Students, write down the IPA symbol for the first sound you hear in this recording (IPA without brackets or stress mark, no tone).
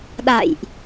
ɗ